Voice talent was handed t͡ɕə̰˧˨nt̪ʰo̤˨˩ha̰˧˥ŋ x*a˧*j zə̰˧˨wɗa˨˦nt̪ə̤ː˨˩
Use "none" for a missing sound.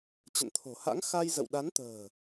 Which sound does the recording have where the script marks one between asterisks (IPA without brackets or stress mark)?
a˧